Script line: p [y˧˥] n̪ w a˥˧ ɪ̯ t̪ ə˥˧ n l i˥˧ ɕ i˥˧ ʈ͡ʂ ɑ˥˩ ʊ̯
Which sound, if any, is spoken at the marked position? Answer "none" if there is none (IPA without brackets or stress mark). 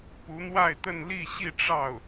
u˧˥